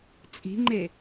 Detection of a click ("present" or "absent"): present